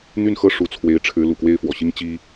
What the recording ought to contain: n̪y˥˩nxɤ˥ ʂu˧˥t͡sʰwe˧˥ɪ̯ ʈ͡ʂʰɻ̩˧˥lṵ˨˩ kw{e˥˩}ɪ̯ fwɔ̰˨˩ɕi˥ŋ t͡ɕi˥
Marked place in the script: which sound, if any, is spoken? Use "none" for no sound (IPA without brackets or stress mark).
e˥˩